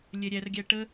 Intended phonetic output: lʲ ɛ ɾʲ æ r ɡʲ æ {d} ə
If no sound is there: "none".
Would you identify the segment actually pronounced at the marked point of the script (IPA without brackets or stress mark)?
ʈ